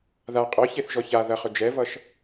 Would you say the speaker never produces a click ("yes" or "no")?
yes